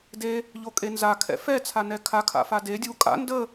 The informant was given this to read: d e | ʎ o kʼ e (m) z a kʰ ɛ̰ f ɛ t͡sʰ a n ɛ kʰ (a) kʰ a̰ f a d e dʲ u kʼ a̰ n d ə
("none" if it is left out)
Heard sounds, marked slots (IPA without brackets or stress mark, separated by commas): n, a